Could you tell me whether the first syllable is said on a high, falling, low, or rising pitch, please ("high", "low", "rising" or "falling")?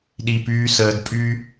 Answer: low